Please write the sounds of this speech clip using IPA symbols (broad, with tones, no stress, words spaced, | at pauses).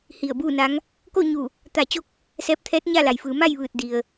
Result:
hi˧˩ə̯buː˥˨na˧˥ŋ | ko˥˨ɲu˧˩ | t̪a˧˩t͡ɕo˧˥k̚ | sɛː˧p̚t̪ʰɛː˧˥t̚ ɲa˥˨la˩jfɯː˩˧ ma˥˨jʋɯː˧˩t̚ di˩ə̯